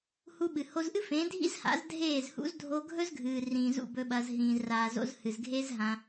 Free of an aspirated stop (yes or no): yes